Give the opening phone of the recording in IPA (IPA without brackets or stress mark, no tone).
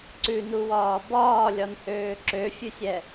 ǀ